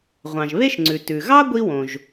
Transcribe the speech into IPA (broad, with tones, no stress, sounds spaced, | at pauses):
ʁʷ ɑ̃˩ ʒ β e˥ ʃ ŋ͡ǀ ʉ˩ t ʉ˩ ɣ ɑ˥ ɡʷ i˥ w õ˩ ʒ